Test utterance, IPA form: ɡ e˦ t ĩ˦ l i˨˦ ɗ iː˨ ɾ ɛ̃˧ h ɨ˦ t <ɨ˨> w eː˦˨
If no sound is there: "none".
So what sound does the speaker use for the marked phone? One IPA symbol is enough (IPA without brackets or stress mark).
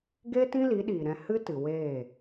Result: ɨ˨